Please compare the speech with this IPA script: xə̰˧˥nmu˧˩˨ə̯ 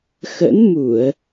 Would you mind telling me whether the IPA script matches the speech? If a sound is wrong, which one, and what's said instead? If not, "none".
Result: none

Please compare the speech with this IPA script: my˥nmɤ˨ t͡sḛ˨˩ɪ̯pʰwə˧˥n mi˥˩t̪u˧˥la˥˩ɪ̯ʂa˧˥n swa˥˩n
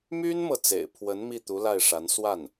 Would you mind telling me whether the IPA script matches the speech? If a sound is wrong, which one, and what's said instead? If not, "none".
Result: none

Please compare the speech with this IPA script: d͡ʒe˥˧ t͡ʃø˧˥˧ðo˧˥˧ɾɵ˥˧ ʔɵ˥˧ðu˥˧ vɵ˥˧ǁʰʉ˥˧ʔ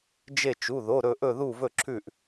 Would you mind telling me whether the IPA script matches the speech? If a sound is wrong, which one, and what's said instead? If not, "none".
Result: ø˧˥˧ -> u˧˥˧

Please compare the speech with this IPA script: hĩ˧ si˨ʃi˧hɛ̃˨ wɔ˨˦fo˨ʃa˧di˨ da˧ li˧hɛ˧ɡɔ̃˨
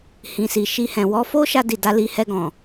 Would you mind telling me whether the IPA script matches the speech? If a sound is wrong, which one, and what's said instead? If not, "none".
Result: o˨ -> o˦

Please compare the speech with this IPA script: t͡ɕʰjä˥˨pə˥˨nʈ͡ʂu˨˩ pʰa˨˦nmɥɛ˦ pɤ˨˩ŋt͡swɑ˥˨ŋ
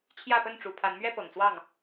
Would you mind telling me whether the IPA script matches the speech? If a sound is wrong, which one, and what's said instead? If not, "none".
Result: none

